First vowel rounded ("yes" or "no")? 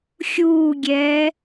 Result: yes